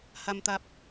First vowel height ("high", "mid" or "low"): low